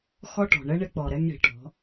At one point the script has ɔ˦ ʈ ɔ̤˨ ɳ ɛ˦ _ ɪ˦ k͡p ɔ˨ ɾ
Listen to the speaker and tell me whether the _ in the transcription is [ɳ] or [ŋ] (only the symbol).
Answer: ɳ